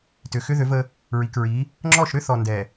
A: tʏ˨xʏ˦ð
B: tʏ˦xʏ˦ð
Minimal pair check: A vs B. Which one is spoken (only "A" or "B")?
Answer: A